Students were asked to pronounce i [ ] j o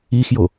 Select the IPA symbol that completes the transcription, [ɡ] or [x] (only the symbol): x